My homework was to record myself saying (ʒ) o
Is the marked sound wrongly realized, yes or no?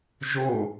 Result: no